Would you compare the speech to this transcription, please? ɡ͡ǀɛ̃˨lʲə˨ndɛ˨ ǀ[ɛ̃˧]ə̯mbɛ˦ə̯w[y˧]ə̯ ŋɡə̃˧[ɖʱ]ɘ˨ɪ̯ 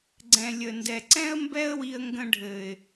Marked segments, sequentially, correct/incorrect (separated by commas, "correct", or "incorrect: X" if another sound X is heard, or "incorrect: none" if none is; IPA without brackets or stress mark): incorrect: ɛ̃˦, incorrect: i˧, correct